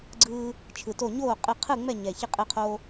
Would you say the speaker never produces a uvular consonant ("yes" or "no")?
no